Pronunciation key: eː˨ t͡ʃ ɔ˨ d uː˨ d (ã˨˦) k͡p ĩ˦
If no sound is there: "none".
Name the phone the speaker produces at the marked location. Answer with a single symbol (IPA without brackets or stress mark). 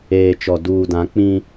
ã˨˦